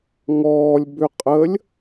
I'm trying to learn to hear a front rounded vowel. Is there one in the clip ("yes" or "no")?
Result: yes